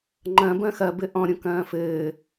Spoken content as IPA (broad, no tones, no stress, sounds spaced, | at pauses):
ŋ͡ǃ ɐ̃ b ɐ̃ x ɐ b ɘ ʔ ɔ̃ ɾʲ õ k ɐ̃ː f ɘː